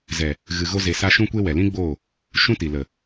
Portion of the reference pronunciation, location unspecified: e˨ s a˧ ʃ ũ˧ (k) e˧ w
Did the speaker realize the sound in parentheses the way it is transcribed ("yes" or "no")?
no